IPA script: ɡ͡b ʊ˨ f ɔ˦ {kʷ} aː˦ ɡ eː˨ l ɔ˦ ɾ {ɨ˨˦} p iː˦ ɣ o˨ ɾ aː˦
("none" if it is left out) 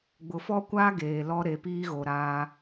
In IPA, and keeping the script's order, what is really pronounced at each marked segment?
kʷ, e˨˦

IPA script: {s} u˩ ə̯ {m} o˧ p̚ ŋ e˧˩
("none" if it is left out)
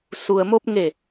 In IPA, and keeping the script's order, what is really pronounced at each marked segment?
s, m

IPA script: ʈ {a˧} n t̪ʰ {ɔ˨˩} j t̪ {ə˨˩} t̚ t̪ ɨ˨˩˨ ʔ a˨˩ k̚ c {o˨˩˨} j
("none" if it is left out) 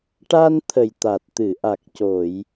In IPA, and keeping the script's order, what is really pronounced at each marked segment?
a˧, ə˨˩, a˨˩, o˨˩˨

